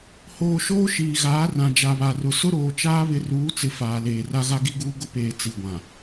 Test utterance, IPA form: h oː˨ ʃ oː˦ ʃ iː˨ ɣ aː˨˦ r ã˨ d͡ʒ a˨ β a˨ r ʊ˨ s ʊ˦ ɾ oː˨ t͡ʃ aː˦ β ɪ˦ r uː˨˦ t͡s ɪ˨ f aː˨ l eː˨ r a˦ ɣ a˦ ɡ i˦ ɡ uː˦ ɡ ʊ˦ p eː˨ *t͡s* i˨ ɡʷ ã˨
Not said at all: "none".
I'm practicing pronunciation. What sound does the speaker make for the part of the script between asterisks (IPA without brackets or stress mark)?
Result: t͡s